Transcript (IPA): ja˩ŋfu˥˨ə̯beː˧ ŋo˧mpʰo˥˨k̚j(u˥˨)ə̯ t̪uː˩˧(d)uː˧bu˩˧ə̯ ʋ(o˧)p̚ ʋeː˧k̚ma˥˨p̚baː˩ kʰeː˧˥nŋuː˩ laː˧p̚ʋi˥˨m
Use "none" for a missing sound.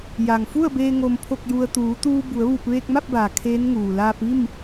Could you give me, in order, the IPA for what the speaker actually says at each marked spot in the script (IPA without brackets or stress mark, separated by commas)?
u˧, t̪, u˧